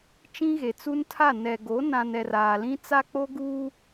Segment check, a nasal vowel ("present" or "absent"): present